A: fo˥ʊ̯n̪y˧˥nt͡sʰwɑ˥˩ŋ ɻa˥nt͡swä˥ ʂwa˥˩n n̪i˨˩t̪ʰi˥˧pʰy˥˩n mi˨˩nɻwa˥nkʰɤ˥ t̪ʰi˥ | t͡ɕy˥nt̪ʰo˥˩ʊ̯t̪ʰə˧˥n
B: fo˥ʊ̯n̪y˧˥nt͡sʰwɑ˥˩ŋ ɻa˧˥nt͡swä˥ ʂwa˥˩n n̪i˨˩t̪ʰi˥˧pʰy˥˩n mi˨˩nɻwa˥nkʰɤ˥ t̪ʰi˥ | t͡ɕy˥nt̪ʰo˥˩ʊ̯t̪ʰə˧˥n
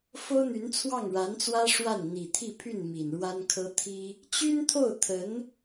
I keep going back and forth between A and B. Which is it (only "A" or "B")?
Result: B